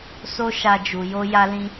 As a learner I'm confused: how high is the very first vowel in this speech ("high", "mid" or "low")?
mid